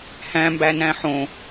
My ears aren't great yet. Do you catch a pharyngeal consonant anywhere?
yes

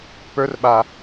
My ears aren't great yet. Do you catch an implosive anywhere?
yes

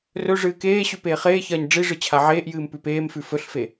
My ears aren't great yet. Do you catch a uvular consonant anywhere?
yes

